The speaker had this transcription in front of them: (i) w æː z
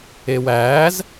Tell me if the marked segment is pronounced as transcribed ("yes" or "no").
no